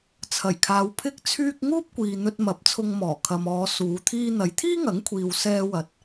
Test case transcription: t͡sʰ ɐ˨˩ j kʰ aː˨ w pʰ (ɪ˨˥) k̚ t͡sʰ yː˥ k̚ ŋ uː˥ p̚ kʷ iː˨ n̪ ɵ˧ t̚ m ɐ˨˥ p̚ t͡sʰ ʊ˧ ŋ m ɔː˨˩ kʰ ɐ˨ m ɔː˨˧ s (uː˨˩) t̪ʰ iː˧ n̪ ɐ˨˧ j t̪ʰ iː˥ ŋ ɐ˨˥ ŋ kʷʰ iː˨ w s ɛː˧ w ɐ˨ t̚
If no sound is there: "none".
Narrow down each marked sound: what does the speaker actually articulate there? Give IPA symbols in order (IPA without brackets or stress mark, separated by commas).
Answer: ɪ˥, uː˨˧